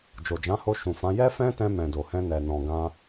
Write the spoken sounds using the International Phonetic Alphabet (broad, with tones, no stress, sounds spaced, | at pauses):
d͡ʒ o˨ d͡ʒ ã˨˦ h o˧ ʃ ũ˨ f ã˨˦ j ɛ˦ f ɛ̃˦ t ɛ̃˧ m ɛ̃˨ d o˨ h ɛ̃˧ n ɛ˨ n ɔ̃˨ ɡ ã˧